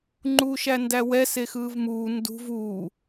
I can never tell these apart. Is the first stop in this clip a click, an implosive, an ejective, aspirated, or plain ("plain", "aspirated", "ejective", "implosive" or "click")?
click